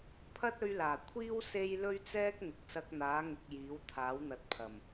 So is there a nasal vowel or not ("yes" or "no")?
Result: no